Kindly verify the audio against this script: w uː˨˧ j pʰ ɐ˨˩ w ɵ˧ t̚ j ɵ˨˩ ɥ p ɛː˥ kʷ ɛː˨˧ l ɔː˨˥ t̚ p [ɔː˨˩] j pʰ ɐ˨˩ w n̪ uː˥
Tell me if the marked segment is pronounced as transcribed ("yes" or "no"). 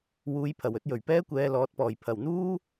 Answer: yes